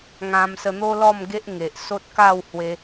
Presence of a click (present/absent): absent